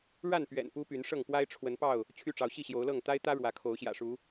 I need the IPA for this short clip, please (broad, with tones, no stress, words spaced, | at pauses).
ɻa˥˨npɥɛ̰˨˩n pu˦py˨˦nʂɤ˥˨ŋ pwa˦ɪ̯ʈ͡ʂʰwə˨˦npɑ˥˨ʊ̯ | t͡ɕʰy˥˨ʈ͡ʂɑ˨˦ʊ̯ ɕi˥˨ɕjo˨˦ʊ̯lɤ˥˨ŋ t̪a˦ɪ̯t̪ä˦ ɻwä˨˦kʰo˨˦ʊ̯ ɕjä̰˨˩ʂu˨˦